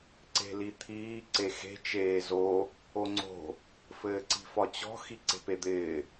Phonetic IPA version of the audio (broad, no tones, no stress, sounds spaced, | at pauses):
ǀ e̤ l i t̪ʰ iː ǀ e x e̤ t͡ʃ eː z o | o ŋ͡ǀ o̤ | f ɘː ǀ i̤ f ɒ t͡ɕ ɔ̤ x i ǀ e̤ p e d̪ ɪː